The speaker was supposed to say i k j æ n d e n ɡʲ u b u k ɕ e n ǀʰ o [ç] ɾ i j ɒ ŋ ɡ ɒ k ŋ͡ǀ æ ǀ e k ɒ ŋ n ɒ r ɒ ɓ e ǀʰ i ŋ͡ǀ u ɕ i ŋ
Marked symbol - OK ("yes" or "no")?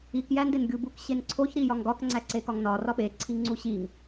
yes